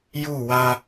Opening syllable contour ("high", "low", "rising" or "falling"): falling